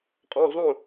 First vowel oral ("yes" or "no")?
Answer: no